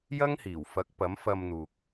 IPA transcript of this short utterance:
jɐ˥ŋhiː˨˩w fɐ˨˥k̚pɐ˨˥mfɐ˧mn̪uː˨k̚

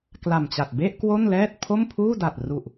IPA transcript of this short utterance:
kla˨˩mt͡ɕa˨˩t̚ be˥˩ʔ kwo˥˩nlɛː˥˩t̚ pʰo˥˩mpʰuː˥˩da˨˩t̚ ru˨˩ʔ

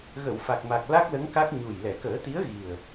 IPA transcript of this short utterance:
ɣə˨˩˨wfa˨˩k̚ma˨˩k̚ la˦˥k̚lə˧˥ŋka˦˥k̚ ɲu˨˩j lɛ˨˩˨kəː˨˩˦t̪i˧˥ə̯ɣi˨˩ə̯

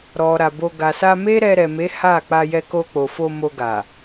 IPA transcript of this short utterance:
ɾɔ˨ ɾa˨bo˧ ɡa˨sa˧ me˦ɾɛ˧ɾɛ˨me˨˦ ha˦˨ k͡pa˧jɛ˧ko˧k͡po˨ fo˧ mo˧ɡa˨

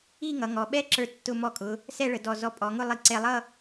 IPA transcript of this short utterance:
i˥˧ŋʌ˩˧ ŋɔ˩˧ɓɛ˥ǁə˞˧tːʊ˧ mɔ˧˩kʼʊ˩˧ | sɛ˥˧ɭə˩˧dɔ˧˩ zɔ˧˩pʼɔ˩˧ŋʊ˥˧lˠi˧ ǀɛ˧lˠʌ˥˧

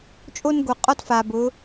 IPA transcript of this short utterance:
t͡ʃʼo˥n ɡo˧qʼɔ˥tfa˧bʊ˧˥

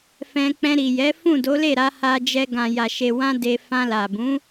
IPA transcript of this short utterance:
fɛ̃˧k͡pɛ̃˧ ɾi˨jɛ˨˦ fũ˦˨do˨˦le˦˨ɾa˨˦ ha˧d͡ʒɛ˧ ɡã˨ja˨ʃe˨wã˧ de˧ fã˧la˨bũ˨˦

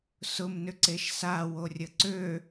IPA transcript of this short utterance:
sʊmnʏǀeʃ saworʲə ǀø

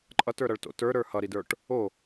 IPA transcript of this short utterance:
ǃʼʌtə˞ɾʌɭto̰ tə˞ɾə˞ hʌɾidə˞ʈ | o

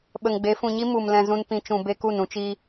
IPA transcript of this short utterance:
ɓə˨ŋɡ͡be˨˦ fũ˨ɲi˦ mu˨m lɛ̃˧zũ˦n pĩ˧ t͡ʃũ˨ be˦ku˦˨n ũ˦t͡ʃi˦

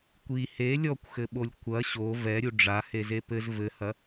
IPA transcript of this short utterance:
kʷi he lʲɔkʷxɘɓolʲ kʷɐ ɕo vɛɾʲu ɖ͡ʐaheze pɘz vɘhɐ

